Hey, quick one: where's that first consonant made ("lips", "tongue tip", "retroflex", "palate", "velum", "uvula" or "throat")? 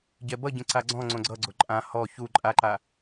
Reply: palate